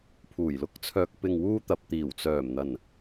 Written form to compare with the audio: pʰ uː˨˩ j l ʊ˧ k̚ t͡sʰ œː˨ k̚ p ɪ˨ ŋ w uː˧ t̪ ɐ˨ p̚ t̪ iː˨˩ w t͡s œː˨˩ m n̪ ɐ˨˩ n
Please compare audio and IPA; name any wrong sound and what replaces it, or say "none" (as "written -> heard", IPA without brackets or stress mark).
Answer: none